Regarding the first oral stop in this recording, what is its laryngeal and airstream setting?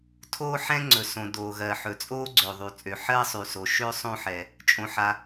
aspirated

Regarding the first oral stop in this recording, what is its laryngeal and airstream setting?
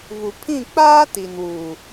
aspirated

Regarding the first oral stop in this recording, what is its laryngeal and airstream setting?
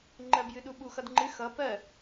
click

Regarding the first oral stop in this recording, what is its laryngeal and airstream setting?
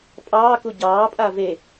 ejective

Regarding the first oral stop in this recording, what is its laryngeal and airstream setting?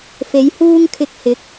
aspirated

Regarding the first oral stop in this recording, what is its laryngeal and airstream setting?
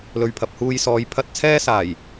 aspirated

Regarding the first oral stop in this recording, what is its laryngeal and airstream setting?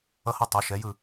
plain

